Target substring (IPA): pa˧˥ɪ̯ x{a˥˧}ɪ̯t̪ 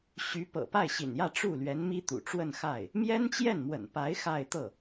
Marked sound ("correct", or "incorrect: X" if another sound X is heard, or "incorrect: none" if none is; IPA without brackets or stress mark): correct